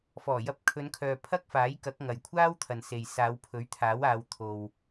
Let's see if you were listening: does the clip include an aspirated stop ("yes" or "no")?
yes